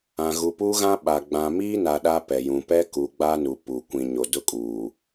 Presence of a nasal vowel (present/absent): present